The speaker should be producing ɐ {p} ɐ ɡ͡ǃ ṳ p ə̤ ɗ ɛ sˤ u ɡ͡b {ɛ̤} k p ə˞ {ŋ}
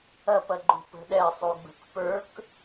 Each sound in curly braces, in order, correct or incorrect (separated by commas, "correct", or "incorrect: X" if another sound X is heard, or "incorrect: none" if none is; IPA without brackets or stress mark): correct, incorrect: ə̤, incorrect: k